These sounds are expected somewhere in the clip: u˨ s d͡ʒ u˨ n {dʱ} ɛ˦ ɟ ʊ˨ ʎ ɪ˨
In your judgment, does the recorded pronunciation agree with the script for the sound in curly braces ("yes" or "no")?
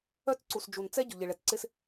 no